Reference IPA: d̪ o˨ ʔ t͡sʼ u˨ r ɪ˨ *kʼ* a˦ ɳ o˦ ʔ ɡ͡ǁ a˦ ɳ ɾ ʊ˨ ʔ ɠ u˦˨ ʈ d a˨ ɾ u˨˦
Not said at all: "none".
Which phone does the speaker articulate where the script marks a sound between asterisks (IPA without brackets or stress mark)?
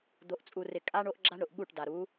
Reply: kʼ